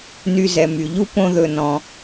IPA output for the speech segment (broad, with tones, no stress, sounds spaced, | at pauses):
n y˧ z ɛ˨ m y˨ ʎ u˦ p õ˦ ð ɵ˧ n ɔ̃˧